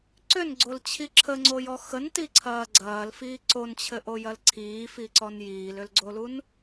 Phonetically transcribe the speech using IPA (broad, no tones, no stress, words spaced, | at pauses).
ǀʏnɡ͡ǀolt͡ɕʰi ǁʰəŋ͡ǀojɔ xəntiǀʰɐː ɡ͡ǀɐːlfiː ǀont͡ɕʰɘʔojɐl ǀʰiːfiǀɔn jiːlʏlɡ͡ǀolun